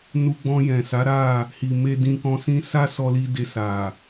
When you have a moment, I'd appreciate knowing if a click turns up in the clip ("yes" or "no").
no